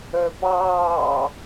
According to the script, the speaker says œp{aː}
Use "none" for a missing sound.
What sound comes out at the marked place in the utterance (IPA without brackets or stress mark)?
ɑː